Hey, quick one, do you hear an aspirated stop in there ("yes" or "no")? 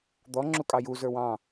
no